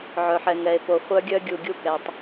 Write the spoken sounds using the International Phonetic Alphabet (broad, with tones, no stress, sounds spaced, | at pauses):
ʕ œ˨ ħ ɛ˨ ŋ ɛ˨ e̯ p o˨ χʷ œ˦ ɡʲ œ˦ ɡʲ u˨ ɡʲ u˦˨ k ɛ˨ tˤ